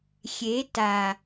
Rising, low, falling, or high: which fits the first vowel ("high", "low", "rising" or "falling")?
rising